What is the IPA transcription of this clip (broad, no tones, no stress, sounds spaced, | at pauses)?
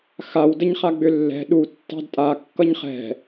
x a w d ə ɲ χ a ɡ͡b ʏ lː ɛ̤ ɗ u tː ɑ̤ d tʼ a kː ʌ ɲ χ ɛ̤